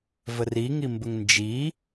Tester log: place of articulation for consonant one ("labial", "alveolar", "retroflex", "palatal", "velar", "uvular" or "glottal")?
labial